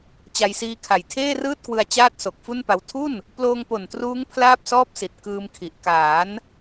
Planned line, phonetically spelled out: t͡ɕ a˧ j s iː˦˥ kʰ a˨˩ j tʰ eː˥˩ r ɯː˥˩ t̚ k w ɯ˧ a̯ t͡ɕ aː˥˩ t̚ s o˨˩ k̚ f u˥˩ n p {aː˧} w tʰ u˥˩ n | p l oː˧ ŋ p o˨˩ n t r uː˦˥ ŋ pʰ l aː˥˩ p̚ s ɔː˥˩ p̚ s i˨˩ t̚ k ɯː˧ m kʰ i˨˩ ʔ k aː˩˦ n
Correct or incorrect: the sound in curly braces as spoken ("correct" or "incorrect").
incorrect